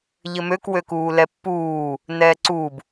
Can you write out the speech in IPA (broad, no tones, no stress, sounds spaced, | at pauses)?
ʎ ɘ m ø k w ø k uː l ɛ pː uː | n ɛː ǀ u b